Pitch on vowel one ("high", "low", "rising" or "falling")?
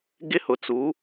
high